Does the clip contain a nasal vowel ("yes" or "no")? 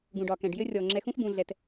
yes